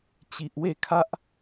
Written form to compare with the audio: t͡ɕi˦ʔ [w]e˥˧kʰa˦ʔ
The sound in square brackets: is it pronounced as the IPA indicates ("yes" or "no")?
yes